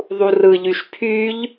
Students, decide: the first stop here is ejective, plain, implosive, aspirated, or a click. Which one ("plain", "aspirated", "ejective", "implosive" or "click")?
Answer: aspirated